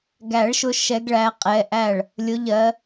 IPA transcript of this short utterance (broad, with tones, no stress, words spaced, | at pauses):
ɡæ˨˩˦ɭʃʊ˨˦ ʃɛ˨˦ɡɭæ˩˧˩qʼɛ˩˧˩ʔæ˥˩ɭ | lʲʊ˨˦ʎɜ˨˦